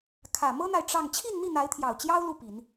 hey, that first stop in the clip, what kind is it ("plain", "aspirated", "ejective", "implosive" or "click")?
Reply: aspirated